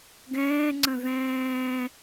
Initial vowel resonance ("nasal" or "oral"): nasal